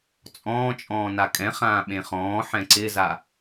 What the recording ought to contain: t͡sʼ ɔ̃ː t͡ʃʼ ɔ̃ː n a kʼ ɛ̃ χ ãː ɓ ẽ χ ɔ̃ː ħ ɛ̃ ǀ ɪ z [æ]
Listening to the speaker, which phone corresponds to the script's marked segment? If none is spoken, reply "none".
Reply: a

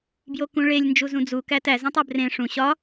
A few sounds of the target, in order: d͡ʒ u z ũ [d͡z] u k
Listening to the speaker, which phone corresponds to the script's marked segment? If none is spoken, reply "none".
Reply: d͡z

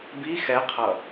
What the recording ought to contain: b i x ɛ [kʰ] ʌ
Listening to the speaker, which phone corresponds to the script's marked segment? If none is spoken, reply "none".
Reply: qʰ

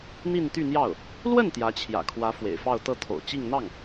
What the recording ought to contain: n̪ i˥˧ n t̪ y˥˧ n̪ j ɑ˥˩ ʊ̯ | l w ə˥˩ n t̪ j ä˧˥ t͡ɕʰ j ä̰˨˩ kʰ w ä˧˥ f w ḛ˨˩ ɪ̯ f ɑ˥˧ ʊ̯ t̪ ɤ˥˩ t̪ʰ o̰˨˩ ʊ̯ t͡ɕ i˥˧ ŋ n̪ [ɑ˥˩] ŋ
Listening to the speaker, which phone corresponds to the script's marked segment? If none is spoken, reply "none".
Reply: ɑ˥˩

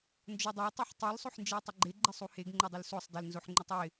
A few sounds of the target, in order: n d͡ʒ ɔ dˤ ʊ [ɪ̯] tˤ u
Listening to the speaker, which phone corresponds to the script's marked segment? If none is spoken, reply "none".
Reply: ɪ̯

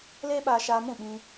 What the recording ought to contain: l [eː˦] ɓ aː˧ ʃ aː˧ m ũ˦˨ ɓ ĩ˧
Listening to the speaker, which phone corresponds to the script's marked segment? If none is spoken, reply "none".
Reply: eː˦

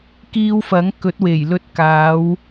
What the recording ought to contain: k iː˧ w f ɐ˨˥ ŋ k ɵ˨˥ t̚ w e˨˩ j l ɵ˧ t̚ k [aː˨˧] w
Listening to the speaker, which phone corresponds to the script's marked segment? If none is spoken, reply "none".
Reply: aː˨˧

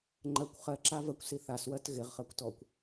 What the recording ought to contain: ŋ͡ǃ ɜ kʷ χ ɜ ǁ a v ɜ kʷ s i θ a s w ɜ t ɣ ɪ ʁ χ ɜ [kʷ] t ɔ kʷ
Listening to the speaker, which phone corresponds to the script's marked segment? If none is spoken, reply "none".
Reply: kʷ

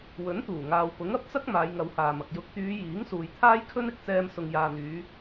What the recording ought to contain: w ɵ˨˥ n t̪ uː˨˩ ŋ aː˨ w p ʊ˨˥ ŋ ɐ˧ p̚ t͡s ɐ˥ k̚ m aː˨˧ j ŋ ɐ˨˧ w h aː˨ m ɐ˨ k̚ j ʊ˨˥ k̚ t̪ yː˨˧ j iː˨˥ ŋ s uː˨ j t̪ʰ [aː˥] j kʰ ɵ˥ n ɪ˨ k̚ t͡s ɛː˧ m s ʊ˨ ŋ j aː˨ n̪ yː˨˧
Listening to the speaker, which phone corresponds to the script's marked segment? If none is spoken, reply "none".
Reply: aː˥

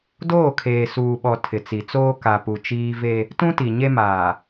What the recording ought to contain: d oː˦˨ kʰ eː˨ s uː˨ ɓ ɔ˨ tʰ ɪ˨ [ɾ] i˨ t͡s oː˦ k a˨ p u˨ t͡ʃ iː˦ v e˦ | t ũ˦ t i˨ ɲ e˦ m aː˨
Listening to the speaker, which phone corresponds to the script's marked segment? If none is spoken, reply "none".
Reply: t͡s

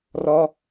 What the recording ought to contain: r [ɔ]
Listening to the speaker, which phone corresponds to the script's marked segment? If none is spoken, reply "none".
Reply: ɔ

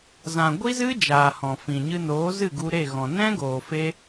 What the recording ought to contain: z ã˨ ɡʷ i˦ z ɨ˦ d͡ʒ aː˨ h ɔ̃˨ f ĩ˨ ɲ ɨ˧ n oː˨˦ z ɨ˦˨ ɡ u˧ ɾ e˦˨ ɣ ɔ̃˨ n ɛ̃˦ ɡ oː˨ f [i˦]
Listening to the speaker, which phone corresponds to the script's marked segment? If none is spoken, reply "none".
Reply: e˦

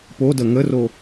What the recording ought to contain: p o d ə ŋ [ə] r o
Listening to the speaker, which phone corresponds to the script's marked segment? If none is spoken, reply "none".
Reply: ə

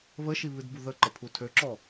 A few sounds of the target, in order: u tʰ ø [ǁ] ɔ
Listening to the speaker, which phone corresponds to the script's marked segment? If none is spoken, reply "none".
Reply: ǁ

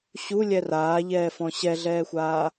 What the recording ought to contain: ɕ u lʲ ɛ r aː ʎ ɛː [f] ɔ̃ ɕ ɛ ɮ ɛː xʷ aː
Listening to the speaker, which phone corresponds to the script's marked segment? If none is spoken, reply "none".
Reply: f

